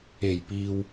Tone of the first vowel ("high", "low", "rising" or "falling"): low